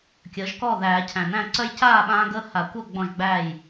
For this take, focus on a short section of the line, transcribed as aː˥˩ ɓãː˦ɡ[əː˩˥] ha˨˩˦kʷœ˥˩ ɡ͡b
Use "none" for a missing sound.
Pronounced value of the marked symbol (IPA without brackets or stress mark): əː˦